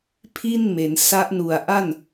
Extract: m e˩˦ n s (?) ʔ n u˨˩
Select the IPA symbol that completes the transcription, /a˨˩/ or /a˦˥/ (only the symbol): a˦˥